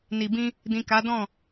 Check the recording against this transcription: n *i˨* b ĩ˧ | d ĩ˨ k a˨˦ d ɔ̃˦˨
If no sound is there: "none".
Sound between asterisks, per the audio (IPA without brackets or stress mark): i˨